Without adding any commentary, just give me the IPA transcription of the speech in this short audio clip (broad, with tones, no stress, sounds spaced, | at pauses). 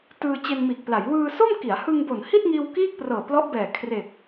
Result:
t ɯː˧ t͡ɕ e˧ n m iː˨˩ k̚ p l a˩˦ j w ɯː˧ s o˥˩ m k i˩˦ a̯ h ɯ˧ ŋ b o˨˩ n h i˥˩ t̚ ŋ iː˧ w k iː˥˩ k̚ p r ɤː˨˩ p l ɔ˦˥ ʔ b ɛː˨˩ kʰ r e˨˩ k̚